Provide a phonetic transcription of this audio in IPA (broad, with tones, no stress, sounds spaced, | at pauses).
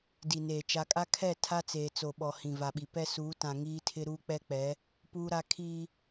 d i˨ n eː˨ t͡ʃ a˨ kʼ a˦ kʰ ɛ˦˨ tʰ a˦ t͡s eː˨ t͡s o˨ ɓ ɔ˨ h ĩ˨ v a˨ ɓ i˨ p ɛ˦ s uː˨˦ t ã˨ ŋ iː˦ tʰ ɪ˦ ɾ uː˦ k͡p ɛ˦ k͡p ɛ˨˦ | p uː˦ ɾ a˦ kʰ iː˦